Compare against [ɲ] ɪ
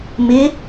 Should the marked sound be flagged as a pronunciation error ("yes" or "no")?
yes